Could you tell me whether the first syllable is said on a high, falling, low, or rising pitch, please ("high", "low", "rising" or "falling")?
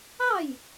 falling